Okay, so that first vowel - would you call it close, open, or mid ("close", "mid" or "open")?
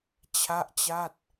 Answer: open